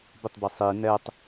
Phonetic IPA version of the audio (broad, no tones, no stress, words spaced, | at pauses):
bɪtˤbi sˤi nɛtˤ